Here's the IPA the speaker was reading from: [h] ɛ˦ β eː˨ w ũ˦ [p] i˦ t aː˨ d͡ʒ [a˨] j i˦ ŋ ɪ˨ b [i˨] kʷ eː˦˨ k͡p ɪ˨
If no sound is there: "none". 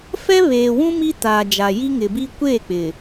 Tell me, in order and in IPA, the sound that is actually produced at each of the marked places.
f, m, a˨, i˦

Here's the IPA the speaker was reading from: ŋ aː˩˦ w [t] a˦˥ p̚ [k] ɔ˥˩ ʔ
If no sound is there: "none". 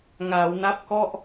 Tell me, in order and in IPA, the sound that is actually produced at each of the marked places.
n, k

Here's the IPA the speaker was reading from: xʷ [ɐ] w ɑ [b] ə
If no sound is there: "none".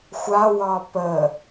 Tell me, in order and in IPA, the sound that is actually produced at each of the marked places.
a, p

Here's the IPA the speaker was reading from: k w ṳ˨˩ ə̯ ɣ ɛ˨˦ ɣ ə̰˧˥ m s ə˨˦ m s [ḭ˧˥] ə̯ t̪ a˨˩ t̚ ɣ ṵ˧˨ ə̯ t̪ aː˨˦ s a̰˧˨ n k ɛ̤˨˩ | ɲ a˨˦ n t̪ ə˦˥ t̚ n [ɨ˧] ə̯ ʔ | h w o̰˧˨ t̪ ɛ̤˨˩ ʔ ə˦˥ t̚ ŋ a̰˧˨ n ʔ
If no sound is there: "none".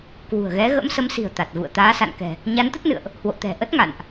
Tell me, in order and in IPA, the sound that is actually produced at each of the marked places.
i̤˨˩, ɨ̰˧˨

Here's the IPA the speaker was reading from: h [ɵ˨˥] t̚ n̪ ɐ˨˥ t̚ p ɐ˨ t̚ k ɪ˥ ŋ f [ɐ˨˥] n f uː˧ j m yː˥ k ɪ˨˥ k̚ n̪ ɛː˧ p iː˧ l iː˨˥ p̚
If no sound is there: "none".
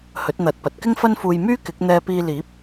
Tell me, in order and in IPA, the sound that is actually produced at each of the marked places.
ɵ˨˥, ɐ˥

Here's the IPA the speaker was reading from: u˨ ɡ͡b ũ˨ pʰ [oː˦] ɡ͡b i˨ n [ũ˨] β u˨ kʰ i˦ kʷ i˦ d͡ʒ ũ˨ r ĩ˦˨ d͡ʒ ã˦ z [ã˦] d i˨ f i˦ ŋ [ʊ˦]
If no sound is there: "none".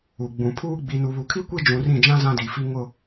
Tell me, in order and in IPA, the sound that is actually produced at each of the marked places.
uː˦, u˨, ã˦, ʊ˦

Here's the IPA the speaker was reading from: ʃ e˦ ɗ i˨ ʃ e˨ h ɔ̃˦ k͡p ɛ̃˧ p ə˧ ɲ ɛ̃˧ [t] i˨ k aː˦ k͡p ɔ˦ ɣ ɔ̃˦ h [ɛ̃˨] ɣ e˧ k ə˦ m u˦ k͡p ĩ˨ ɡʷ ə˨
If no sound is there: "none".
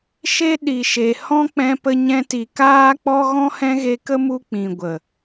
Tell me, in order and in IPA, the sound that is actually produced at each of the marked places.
t, ɛ̃˦

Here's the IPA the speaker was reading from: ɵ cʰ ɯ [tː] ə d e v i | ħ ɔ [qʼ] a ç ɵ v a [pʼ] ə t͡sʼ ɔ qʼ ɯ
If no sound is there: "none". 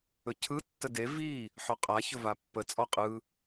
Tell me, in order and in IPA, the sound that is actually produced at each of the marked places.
tː, qʼ, pː

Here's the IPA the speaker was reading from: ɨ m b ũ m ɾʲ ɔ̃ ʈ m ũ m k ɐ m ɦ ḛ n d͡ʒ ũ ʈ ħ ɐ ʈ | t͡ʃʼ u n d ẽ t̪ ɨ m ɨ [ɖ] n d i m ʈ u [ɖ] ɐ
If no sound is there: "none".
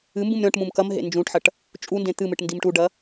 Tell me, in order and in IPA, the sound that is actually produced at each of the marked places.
ʈ, ɖ

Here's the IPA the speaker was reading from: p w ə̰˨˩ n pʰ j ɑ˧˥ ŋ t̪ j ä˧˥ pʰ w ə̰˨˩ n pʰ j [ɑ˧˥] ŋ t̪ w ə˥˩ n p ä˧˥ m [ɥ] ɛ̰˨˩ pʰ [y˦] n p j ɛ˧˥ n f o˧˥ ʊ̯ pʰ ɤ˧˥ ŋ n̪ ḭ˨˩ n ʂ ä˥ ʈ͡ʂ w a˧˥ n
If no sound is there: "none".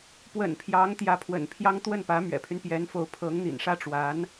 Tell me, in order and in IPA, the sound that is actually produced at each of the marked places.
ɑ˥, ɥ, y˦

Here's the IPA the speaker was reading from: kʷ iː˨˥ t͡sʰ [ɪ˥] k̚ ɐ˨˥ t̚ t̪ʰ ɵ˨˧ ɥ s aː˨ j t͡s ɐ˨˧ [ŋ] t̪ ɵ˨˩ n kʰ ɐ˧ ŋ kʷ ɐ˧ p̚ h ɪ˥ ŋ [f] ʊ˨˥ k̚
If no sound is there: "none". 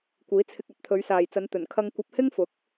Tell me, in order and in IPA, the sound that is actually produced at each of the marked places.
ɪ˧, n, f

